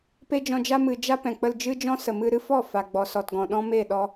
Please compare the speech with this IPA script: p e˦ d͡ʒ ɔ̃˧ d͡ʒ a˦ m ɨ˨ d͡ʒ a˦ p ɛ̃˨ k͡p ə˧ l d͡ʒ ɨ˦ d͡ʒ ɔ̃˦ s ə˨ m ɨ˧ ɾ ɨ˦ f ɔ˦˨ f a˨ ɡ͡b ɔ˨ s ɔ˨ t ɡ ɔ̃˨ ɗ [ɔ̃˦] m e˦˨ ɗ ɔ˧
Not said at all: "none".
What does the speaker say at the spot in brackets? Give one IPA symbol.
ɔ̃˦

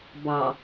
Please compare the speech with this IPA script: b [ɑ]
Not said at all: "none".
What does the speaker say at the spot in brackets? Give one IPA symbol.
ɑ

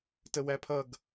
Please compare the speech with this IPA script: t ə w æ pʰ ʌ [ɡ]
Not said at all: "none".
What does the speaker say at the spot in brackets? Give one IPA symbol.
ɡ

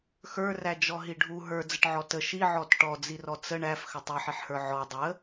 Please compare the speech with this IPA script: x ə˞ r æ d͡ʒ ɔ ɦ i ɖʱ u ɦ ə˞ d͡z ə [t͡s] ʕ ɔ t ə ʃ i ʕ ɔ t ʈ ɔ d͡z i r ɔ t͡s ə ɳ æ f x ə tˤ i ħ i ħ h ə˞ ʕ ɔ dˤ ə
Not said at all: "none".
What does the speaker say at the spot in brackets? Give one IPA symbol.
ʈ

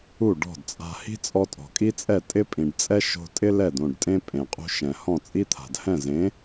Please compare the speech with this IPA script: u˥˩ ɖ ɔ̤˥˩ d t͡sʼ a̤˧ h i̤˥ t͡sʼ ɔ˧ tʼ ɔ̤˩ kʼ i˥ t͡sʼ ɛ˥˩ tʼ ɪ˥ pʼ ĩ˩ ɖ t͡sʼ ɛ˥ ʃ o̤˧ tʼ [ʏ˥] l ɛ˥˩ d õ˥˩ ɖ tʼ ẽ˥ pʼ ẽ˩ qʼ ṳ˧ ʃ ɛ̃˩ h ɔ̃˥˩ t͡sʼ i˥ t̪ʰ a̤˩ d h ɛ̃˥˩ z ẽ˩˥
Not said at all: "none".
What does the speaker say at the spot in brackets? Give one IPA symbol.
ɪ˥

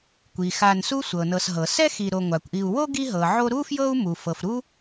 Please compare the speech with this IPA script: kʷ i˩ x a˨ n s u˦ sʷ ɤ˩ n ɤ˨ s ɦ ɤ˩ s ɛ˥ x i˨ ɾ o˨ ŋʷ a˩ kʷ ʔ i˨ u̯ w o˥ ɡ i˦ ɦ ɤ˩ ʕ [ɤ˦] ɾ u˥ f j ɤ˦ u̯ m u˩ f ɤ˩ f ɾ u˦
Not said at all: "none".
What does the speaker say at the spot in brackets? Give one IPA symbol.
o˦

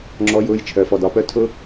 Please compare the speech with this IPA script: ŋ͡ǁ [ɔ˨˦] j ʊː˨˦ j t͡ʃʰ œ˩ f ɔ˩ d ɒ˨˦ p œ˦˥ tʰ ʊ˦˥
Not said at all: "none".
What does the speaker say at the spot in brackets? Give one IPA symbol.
ɔ˨˦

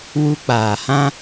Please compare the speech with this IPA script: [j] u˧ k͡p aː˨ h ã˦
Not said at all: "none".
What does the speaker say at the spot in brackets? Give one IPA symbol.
w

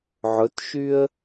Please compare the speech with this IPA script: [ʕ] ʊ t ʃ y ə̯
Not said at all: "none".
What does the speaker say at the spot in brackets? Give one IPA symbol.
ʕ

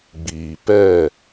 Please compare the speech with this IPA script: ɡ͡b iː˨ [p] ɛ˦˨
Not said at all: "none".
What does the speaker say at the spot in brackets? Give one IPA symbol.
p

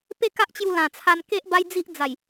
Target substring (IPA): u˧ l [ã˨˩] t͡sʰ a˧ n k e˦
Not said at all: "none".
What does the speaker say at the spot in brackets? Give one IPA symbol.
ã˨˩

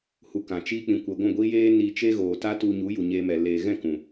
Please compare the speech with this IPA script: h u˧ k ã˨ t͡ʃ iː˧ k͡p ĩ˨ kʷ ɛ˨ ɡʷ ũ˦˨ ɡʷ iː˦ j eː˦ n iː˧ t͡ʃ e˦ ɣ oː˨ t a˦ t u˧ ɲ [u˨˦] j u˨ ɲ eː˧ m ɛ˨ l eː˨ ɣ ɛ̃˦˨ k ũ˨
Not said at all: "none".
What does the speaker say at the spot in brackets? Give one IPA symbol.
u˨˦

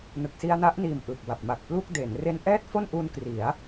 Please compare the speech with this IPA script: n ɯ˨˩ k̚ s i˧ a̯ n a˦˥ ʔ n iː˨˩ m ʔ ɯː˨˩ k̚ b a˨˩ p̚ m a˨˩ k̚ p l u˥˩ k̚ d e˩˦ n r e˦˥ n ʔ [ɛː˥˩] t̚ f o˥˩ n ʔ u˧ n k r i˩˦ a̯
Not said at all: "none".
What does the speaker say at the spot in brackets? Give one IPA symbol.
ɛː˥˩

